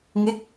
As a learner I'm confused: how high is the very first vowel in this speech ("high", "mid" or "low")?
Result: mid